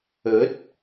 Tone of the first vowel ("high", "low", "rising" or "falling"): rising